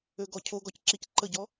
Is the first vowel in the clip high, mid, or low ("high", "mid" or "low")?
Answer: mid